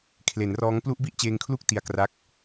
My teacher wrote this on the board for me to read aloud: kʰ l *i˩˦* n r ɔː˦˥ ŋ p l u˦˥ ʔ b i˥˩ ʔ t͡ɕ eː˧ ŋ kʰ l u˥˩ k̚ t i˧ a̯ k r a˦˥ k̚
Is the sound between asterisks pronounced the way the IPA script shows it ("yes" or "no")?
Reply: no